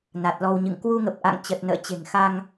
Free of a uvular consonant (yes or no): yes